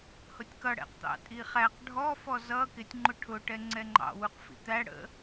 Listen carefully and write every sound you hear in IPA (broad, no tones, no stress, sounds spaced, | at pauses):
h ʊ tʲ k ʌ ɽ ɛ̰ q t̪ ɑ̰ tʼ i χ æ q ɖʱ ɔ f ɔ z ʌ k ɪ tʲ ŋ͡ǃ ʊ ʈʰ ʊ ʈ ɛ ŋ͡ǀ ɛ ŋ͡ǃ ɑ̰ w u q f ḭ t̪ æ ɽ ə̰